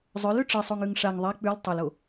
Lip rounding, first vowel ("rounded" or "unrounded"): rounded